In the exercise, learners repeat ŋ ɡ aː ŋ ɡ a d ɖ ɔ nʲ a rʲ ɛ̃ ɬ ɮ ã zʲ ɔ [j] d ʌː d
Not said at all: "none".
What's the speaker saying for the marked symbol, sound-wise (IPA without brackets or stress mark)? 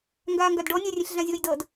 j